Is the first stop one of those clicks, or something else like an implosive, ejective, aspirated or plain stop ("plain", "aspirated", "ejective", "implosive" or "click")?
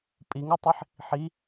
ejective